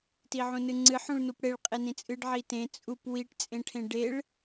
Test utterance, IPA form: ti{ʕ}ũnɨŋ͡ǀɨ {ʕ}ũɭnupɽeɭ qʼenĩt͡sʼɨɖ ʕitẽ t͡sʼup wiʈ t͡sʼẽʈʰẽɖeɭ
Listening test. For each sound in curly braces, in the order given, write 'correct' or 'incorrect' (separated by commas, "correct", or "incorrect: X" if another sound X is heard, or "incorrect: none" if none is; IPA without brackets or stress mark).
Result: correct, incorrect: ħ